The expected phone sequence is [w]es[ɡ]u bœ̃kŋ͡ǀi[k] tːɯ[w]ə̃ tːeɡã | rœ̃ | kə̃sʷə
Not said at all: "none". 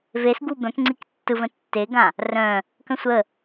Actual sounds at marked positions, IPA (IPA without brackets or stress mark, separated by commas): v, ɡ, k, v